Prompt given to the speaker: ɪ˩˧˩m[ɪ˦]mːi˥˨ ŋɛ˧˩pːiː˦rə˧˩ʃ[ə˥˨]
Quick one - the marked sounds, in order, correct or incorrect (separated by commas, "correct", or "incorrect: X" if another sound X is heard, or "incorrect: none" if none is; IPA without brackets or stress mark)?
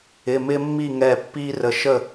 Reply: correct, correct